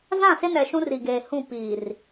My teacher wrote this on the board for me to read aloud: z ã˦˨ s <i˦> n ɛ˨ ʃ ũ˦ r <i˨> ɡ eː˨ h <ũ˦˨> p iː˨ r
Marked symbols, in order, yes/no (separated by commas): no, yes, yes